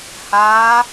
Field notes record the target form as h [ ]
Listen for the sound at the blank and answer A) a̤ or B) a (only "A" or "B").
B